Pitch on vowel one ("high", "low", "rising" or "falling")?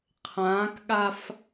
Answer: rising